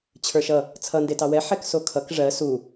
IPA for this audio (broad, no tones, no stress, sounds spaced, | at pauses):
t͡ɕʰ ə˞ ʃ ʌ | t͡sʰ ʌ n d e t ɑ w ɛ ħ ɛ k s o kʰ ʌ k ʐ ɜ s u